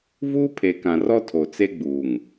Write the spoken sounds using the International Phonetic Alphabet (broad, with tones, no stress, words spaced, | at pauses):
vuː˦pʰe˨kã˨rɔ˦ tʰo˨t͡se˦ɡ͡buː˨ŋ